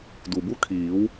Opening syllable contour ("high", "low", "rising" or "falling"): low